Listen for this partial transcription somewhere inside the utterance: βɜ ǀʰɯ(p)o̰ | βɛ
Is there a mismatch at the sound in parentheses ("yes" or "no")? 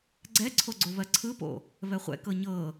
no